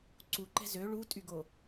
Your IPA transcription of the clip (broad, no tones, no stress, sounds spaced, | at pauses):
ǀ u ǃ ɛ̤ z ø ɭ u tʼ y ɡ o